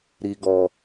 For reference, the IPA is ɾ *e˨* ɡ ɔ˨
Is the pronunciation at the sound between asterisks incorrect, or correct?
incorrect: i˨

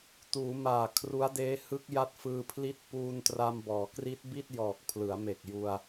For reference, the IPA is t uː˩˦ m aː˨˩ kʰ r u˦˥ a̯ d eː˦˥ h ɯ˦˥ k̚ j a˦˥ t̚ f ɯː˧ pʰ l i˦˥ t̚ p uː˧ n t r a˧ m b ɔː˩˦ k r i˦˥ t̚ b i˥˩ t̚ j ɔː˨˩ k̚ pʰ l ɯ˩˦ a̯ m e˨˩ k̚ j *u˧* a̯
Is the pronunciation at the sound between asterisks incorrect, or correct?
correct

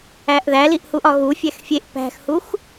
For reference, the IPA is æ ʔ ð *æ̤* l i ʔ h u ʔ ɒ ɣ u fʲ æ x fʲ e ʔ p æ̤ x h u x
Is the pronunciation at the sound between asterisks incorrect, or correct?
incorrect: æ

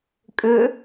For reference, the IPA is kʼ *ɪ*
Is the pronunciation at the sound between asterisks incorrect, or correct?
incorrect: ʏ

